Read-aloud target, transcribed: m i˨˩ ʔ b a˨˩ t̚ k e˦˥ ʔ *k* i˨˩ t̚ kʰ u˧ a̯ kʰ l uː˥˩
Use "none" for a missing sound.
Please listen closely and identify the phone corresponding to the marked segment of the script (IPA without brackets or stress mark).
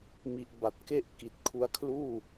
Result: k